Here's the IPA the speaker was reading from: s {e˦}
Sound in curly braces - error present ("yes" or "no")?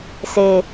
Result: yes